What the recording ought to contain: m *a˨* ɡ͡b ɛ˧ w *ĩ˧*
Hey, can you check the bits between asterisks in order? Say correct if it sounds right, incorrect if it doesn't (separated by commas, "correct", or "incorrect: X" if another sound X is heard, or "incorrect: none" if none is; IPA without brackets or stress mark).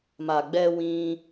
correct, correct